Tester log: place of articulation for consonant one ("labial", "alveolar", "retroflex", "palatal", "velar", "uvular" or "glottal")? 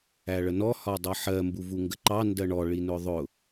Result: retroflex